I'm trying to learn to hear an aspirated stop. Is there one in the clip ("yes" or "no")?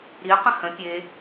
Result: no